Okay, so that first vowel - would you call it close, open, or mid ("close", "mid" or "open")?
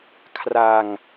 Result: open